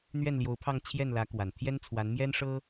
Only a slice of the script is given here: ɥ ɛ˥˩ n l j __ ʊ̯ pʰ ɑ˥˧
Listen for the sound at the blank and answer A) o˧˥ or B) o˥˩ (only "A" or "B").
A